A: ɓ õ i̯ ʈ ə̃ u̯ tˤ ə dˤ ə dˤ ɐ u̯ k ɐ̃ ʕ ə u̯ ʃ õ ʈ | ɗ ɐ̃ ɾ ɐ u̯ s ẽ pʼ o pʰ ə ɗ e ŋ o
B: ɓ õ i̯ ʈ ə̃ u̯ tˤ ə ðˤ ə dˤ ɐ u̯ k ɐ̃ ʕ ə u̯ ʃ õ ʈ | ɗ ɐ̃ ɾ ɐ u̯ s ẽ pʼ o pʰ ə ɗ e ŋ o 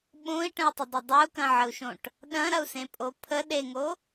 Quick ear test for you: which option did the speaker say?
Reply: A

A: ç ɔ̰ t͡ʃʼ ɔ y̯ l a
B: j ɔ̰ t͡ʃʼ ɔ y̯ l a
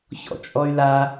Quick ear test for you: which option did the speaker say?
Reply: A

